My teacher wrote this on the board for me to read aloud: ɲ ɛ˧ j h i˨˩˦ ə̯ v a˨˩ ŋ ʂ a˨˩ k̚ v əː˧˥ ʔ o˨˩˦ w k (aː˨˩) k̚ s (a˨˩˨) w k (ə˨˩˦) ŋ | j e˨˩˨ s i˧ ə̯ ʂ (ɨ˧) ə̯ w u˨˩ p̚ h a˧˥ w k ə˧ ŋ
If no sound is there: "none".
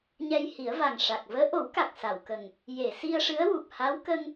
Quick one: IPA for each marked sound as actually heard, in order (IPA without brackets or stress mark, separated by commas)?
a˨˩, a˨˩˨, ə˨˩, ɨ˧˥